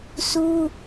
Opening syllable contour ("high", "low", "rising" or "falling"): high